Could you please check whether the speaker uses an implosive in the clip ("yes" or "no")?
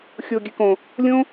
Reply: no